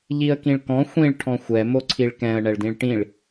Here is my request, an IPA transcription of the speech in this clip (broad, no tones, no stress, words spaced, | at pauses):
ʎiə̯kĩɭkɔ̃ xʷĩɭ ʈʰɔ̃xʷɛ moǀʰiɭkɛ̃ə̯ ɳɛɭdĩɭʈĩɭ